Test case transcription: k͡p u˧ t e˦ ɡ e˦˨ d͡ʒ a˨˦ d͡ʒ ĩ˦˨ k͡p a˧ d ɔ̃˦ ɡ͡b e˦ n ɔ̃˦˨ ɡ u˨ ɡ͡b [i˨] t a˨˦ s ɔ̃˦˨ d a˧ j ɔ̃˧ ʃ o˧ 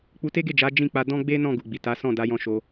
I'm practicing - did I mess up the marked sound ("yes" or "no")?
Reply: no